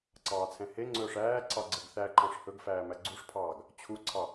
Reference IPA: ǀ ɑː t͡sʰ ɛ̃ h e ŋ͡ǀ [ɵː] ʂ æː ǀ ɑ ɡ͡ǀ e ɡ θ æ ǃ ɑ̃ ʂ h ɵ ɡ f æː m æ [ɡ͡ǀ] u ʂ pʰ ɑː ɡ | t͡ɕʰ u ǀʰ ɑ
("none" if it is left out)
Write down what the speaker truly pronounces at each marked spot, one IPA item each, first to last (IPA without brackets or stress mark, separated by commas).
ɵː, ɡ͡ǀ